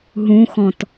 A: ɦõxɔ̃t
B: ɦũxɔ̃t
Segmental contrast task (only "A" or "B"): B